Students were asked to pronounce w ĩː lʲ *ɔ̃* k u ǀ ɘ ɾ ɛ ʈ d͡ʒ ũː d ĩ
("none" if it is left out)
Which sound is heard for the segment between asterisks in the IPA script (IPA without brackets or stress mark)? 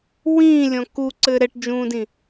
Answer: ɔ̃